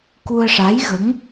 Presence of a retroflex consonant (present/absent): present